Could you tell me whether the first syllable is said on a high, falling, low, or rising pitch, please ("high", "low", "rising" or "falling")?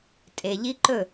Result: low